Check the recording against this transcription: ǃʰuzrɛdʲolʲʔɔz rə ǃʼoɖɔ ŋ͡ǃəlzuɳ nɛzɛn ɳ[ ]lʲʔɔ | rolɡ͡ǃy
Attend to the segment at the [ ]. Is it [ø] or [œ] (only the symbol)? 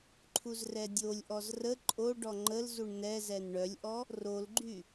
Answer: œ